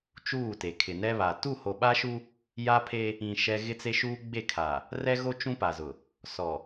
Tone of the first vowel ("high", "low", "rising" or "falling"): falling